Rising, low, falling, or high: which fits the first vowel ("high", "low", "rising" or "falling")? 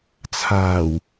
low